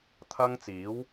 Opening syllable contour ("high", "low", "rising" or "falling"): high